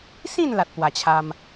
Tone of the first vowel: falling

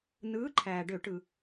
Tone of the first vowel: rising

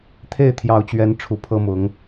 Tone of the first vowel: falling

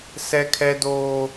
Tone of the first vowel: high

